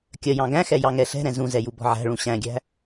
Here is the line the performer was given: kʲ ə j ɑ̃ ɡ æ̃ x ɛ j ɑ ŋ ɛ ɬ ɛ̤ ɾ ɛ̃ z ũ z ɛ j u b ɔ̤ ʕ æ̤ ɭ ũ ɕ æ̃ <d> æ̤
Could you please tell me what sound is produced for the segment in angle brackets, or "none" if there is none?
ɡʲ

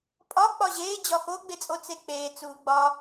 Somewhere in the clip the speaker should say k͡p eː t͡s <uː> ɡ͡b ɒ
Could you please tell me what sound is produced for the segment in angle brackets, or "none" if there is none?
uː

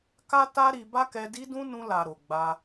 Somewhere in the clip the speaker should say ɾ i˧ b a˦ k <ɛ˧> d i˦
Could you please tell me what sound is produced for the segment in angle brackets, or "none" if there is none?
ɛ˧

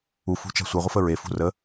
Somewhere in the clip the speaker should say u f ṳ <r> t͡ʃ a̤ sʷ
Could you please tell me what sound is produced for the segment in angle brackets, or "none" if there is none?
none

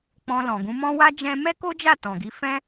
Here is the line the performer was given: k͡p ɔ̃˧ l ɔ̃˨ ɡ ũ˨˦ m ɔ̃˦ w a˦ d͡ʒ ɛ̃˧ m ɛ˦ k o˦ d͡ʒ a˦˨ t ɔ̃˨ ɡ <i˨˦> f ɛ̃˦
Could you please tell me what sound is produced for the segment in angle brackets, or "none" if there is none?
i˨˦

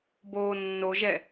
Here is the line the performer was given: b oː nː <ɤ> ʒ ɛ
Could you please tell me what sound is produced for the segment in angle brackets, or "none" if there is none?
o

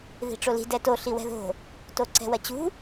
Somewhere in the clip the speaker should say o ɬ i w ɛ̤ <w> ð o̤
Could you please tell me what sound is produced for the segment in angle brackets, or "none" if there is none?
none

